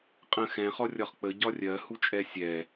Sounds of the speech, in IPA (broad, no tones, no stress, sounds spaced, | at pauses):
qʼ ə̃ x ɛ̃ χ ɔ rʲ ɒ χ k͡p ə ɟ ɒ rʲ ɜ h u t͡ʃʼ ɛ sʲ ɛ